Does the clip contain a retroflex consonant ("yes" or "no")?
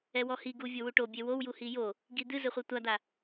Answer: yes